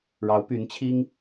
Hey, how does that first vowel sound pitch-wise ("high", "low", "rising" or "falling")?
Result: rising